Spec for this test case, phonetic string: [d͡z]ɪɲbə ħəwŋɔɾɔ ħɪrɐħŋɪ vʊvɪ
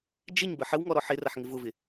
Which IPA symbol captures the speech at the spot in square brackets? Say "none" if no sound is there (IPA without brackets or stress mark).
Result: d͡ʒ